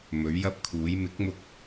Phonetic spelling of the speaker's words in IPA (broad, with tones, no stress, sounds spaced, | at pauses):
m ɵ˨˥ ɥ j ɐ˥ p̚ kʰ uː˨˥ j m ɪ˨˥ k̚ m ʊ˧ k̚